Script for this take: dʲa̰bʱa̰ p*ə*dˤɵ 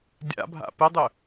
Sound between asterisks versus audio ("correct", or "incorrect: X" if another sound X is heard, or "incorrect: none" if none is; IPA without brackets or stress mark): correct